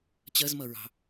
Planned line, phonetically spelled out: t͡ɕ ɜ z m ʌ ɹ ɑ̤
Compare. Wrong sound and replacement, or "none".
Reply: none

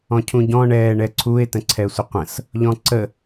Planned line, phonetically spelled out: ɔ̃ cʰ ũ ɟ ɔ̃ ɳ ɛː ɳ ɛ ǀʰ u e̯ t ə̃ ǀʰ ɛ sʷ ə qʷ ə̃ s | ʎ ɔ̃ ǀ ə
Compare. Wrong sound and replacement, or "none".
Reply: none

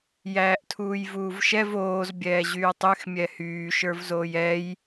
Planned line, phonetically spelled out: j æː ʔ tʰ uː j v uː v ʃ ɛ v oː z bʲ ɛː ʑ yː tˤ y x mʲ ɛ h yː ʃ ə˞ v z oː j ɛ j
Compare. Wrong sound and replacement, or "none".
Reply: none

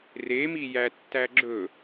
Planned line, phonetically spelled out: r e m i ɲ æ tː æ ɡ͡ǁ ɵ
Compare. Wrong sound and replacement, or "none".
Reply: ɲ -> j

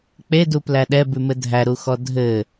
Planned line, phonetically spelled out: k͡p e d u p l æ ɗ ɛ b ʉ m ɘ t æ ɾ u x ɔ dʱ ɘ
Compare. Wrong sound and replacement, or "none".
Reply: t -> dʱ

